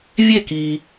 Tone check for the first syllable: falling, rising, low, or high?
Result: falling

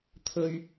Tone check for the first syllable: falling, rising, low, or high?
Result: high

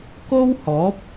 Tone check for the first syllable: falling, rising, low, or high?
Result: high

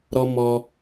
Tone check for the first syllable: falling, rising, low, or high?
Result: high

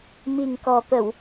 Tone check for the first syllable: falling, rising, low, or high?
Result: low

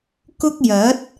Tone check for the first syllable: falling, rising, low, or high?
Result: high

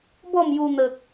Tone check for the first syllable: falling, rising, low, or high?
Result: falling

